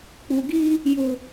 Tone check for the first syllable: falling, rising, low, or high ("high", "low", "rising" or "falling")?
low